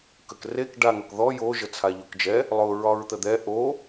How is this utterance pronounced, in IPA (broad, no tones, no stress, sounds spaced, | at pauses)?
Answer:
k ə k r e k ɖ a ŋ ɒ k ð ɔ j o ʒ ə t͡sʰ a ʎ o k d͡ʒ ɛ | lˠ ʊ ɹ ɒ ɹ t̪ ə d̪ ɛ ʔ o